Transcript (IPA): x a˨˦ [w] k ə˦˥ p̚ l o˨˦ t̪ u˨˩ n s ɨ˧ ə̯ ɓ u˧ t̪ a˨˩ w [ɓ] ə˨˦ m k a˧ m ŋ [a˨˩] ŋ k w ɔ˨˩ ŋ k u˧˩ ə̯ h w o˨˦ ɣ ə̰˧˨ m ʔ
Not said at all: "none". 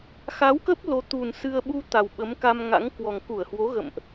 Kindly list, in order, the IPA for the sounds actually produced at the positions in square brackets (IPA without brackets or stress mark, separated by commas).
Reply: w, ɓ, a̰˧˥